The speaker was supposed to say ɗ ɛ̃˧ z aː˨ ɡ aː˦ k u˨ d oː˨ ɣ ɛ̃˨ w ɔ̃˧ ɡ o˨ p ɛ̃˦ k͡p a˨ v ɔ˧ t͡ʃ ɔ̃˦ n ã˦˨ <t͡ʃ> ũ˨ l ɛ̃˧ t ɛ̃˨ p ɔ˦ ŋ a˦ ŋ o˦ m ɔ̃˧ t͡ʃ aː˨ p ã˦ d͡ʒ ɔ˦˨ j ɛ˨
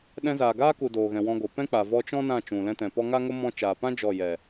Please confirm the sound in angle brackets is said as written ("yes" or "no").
yes